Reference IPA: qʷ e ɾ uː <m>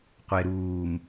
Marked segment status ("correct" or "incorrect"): correct